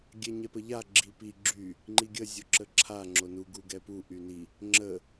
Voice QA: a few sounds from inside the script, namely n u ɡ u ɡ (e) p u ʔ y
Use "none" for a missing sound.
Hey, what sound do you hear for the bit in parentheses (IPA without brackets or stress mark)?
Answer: ɛ